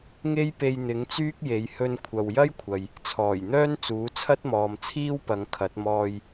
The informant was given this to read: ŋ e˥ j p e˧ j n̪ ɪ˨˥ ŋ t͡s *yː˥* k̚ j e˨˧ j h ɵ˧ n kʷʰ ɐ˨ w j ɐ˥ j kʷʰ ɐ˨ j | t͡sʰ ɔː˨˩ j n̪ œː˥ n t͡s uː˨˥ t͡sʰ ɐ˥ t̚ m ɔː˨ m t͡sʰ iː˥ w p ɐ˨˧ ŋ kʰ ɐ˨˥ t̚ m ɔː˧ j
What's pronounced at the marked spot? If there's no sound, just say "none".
yː˥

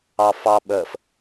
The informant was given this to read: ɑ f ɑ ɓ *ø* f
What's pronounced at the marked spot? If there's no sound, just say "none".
ə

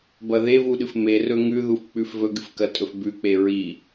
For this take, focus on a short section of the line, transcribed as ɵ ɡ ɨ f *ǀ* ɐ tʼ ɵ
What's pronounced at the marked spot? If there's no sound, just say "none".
k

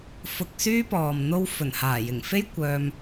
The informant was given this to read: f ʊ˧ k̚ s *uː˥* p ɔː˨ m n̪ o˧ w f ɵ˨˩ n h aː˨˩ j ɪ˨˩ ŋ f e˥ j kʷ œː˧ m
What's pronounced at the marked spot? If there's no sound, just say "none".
yː˥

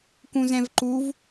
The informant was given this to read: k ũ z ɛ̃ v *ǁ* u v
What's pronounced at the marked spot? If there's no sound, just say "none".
ǃ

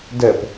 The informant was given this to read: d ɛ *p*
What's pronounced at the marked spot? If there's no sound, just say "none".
p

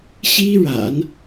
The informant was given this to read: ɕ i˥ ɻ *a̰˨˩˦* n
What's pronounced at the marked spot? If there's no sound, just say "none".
a̰˨˩˦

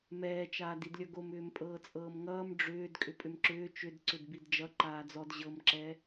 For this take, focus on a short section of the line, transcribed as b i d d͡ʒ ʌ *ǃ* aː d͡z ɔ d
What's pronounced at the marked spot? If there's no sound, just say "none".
ǃ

